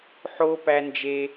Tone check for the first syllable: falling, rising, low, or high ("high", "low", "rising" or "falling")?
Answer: high